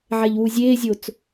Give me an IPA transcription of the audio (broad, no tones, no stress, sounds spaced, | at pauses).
ʕ ɛ ʎ w u zʲ eː zʲ o t͡s